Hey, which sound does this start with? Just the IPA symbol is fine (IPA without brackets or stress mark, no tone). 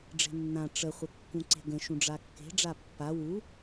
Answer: ɖ͡ʐ